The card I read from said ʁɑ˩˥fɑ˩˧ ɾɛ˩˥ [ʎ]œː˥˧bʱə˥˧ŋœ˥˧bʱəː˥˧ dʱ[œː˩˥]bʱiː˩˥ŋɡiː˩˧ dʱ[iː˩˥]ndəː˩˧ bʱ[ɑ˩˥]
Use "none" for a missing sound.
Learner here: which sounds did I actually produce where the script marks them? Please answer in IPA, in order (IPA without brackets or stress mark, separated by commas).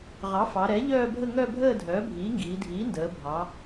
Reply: ʎ, œː˩˥, iː˩˥, ɑ˩˧